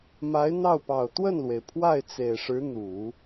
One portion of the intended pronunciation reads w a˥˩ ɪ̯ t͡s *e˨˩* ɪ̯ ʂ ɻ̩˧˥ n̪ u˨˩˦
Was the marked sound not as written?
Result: no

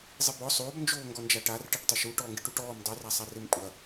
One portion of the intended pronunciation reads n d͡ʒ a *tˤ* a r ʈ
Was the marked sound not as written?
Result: yes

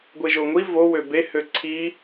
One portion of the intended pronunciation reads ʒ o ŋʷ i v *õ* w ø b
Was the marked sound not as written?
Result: yes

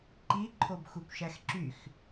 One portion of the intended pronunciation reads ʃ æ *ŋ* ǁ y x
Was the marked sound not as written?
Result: yes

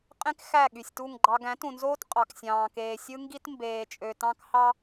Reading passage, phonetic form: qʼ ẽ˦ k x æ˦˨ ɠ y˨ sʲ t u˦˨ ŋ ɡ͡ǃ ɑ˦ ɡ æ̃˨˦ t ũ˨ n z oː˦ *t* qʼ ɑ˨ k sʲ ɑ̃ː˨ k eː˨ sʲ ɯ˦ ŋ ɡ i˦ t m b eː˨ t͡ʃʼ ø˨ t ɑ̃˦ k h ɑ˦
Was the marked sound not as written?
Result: no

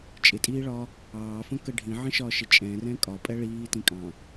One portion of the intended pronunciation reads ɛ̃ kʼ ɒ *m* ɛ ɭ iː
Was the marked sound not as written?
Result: yes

